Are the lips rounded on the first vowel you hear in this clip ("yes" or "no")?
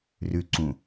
yes